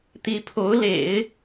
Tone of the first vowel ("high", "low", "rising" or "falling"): rising